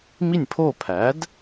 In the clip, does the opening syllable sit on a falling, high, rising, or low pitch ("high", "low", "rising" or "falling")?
falling